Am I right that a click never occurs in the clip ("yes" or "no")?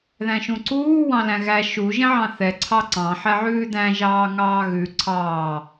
no